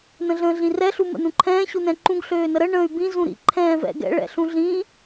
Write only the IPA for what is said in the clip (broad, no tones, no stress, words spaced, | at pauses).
nə̃ɮə̃ːɮĩrɛ ɬumə̰nũǃʰɛ̃ː ɕunɛ̃ǃũɡ ɬøːnəɾə ɳə̃ːy̯bĩ zũɾḭ ǃʰɛ̃ːvɛ̰ɡɛ̰ ɭɛ̰ɬũɮĩ